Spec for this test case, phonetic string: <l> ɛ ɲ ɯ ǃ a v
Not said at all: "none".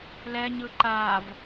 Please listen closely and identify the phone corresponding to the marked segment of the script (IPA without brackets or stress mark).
l